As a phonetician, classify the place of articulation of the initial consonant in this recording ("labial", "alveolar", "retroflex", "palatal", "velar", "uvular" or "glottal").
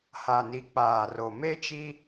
glottal